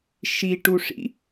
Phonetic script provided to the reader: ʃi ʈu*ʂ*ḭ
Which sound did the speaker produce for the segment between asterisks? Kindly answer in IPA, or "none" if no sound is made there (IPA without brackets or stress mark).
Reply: ʂ